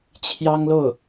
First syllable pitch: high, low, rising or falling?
high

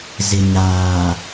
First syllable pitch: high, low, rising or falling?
low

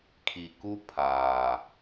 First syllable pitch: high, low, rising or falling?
low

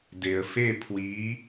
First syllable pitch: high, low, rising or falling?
low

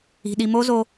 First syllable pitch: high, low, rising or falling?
low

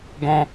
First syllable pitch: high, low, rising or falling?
high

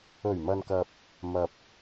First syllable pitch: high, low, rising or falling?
low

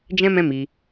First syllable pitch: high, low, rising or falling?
high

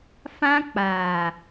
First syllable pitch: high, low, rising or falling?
high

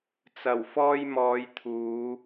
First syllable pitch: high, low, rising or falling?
low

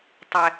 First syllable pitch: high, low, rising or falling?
high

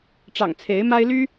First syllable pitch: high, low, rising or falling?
low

